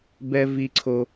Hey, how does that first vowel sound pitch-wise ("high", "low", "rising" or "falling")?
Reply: high